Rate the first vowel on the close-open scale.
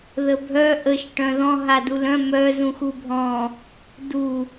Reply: mid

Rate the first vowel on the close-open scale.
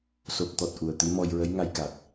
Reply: mid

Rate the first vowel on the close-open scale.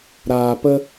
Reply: open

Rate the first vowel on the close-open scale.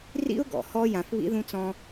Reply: close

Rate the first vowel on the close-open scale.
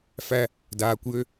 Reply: open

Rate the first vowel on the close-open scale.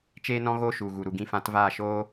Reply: mid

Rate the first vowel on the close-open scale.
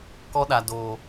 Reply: mid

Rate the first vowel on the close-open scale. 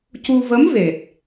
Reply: close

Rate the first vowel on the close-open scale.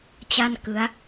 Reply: open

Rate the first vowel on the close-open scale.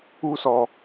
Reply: close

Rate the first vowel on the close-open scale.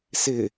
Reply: close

